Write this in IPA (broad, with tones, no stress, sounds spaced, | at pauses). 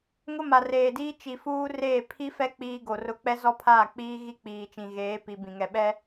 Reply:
ŋ ʊ˦ m a˨ r eː˨ d iː˦ t͡ʃ i˨ f uː˦ r eː˦˨ pʰ i˦ f ɛ˦ k͡p iː˦ ɡ o˨ r ʊ˦ k͡p ɛ˦ z ɔ˦ pʰ aː˦˨ k͡p iː˦ ɣ i˦ k͡p iː˨ t͡ʃ ĩ˨ ɣ eː˨˦ p i˨ b ĩ˨ ŋ ɛ˨ ɓ ɛ˦